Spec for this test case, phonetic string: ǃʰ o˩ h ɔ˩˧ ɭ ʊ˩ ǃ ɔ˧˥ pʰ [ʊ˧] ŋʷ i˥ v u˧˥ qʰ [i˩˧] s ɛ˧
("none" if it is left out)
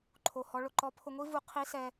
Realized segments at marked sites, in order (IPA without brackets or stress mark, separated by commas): ʊ˧, i˧˥